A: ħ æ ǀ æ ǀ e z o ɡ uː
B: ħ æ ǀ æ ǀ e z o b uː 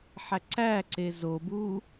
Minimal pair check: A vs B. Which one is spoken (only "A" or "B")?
B